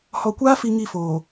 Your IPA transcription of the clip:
h ɔ˨ kʷ aː˦ f i˨ ŋ i˦˨ f oː˨

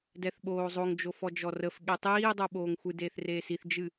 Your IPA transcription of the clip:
d ɛ θ ɓ oː zˤ o ŋ d͡ʒ o f ɔ d͡ʒ ɔ r ə f ɠ e tˤ iː dˤ o ɓ oː ŋ xʷ ɨ d eː θ r eː s i θ d͡ʒ ɨ

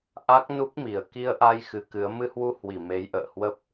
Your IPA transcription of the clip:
ʔ a˦˥ k̚ n u˦˥ k̚ m i˨˩ ə̯ k i˧ ə̯ ʔ a˧ j x ɨ˨˦ k ɨ˨˦ ə̯ m ɨ˧ h w u˧ h w i˧˩ m e˨˦ j ʔ ə̰ː˧˨ h w ə˦˥ p̚

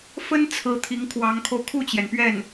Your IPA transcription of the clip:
f ə˥ n t͡sʰ ɹ̩˧˥ t̪ʰ i˧˥ ŋ kʰ w ɑ˧˥ ŋ kʰ o˧ ʊ̯ kʰ u˥˩ t͡ɕ j ɛ˩ n p ɥ ɛ˥˩ n

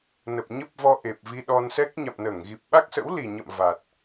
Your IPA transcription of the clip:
n ə˨˩ p̚ ɲ ə˦˥ p̚ v ɔ˧ ʔ e˨˩ p̚ v i˧ ɗ ɔ˧ n s ɛ˦˥ k̚ ɲ a̰˧˨ m n əː˧˩ ŋ ɣ i˨˩ p̚ ɓ a˦˥ k̚ s ə̰˧˥ w l i˨˩ ɲ ə̰˧˨ m v a˨˩ t̚

